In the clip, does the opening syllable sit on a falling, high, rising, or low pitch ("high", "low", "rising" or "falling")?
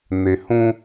low